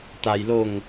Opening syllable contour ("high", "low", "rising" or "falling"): low